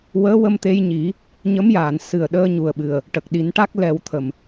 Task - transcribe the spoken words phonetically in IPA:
w əː˧˥ w ə˧ m t̪ e˧ j ɲ i˨˩˦ | ɲ ə˧˥ m j aː˨˩˨ n s ɨ˨˩ ə̯ ɗ əː˧ ɲ u˨˩ ə̯ ɓ ɨ˨˩ ə̯ | ʈ ə˨˩ k̚ ɗ i˨˩˦ n ʈ a˦˥ k̚ l ɛ˨˩˦ w t̪ʰ ə˨˩ m

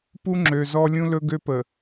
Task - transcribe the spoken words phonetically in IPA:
p u˦ ŋ͡ǁ ø˨ z ɔ˦ lʲ ũ˦ l ɵ˦ ɡ ø˦ p ə˨

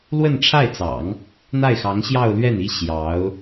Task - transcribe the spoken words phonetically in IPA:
l w ə˥˧ n ʈ͡ʂʰ a˥˩ ɪ̯ t͡s ɑ̰˨˩˦ ŋ | n̪ a˥˩ ɪ̯ x ɑ˧˥ ŋ ɕ j ɑ˥˧ ʊ̯ l ɥ ɛ˥˩ n i˥ ɕ j ɑ˧˥ ʊ̯

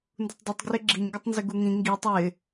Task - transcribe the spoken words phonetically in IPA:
n d u tˤ dˤ i tˤ ɡ r ɪ ɡ͡ǁ i ɲ ɡ ə tˤ n z ɪ ɡ u ŋ ĩ ŋ ɡ i tˤ ɪ

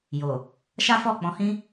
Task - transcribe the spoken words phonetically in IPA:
j o˨ | ʃ a˦ f ɔ˦˨ k͡p ɔ̃˨˦ h ĩ˦

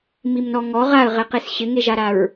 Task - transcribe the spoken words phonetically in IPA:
m i m n ɔ ŋ ɔ ʁ a ə̯ ʁ ɛ q e s ɕ ɪ ŋ e ʒ a ɾ a ɹ

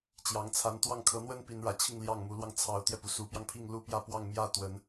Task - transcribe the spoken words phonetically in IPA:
t͡ɕ j ɑ˧˥ ŋ t͡sʰ a˧˥ n t̪ w ɑ˥˩ ŋ kʰ ɤ˧˥ n̪ w ə˥ n p i˧˥ n ɻ ä˨˩ t͡ɕʰ i˥˧ ŋ l j ɑ˥˩ ŋ m u˧˥ l w ɑ˧ ŋ t͡sʰ ɑ˧˥ ʊ̯ t̪ j ɛ˧ p u˩ s u˧˥ p j ɑ˧ ŋ pʰ i˥˧ ŋ l u˥˧ p j ä˥˧ p w ɑ˥˧ ŋ m j ä˥˩ t̪ w ə˨˩˦ n

